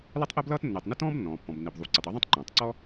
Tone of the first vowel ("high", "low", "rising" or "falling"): high